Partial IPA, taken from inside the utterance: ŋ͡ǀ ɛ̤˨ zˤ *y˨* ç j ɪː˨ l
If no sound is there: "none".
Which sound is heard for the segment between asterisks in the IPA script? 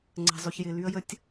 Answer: y˨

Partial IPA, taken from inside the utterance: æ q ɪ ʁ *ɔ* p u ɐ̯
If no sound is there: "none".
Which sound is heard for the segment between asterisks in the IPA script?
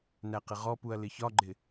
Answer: ɔ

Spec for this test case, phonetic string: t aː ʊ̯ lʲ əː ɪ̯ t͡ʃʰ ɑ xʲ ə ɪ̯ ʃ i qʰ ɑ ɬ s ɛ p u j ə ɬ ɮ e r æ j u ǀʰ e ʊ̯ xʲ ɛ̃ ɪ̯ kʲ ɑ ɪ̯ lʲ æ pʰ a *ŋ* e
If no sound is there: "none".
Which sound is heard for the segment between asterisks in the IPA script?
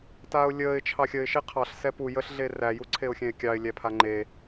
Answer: ŋ͡ǃ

